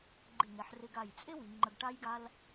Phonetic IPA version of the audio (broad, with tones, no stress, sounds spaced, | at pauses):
ɡ͡ǃ ɪ˧˩ ŋ ɛ˩˧ ħ r ɪ˧ ɡ a˧˩ j t͡sʼ e˥ w i˩˧ ŋ͡ǃ ə˧ ɡ ʈ a˥ j ɡ a˥ l